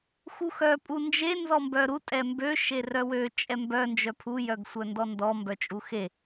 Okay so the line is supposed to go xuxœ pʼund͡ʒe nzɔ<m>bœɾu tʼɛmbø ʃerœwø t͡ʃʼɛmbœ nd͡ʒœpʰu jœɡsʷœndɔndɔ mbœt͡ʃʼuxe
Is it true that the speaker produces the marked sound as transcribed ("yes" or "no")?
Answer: yes